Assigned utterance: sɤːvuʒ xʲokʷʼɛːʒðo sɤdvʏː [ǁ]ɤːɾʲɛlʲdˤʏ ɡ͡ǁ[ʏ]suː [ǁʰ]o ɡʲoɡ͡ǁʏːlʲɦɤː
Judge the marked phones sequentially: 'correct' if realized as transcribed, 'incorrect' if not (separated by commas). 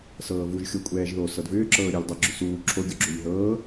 correct, correct, correct